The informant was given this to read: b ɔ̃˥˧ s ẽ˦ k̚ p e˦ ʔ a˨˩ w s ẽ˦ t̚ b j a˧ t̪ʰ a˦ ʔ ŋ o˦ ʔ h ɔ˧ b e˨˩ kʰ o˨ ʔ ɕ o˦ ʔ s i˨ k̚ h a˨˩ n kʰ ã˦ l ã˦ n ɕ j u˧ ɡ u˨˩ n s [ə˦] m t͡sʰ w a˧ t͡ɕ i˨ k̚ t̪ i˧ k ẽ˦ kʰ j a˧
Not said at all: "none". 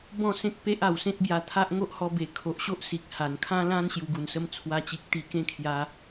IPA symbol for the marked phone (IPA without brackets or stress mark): ə˦